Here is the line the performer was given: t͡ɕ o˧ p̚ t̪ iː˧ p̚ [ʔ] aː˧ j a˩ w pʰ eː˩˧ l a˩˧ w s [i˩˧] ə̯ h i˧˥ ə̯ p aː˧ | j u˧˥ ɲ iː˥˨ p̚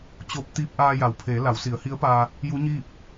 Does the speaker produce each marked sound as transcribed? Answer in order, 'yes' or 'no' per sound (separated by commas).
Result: yes, yes